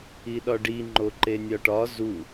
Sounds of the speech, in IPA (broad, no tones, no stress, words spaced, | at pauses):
iɗɒɖi ŋ͡ǃoǃenʲɒʈɒ zu